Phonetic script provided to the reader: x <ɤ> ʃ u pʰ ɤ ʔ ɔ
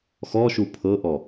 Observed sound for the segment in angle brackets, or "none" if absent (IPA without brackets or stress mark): ɔ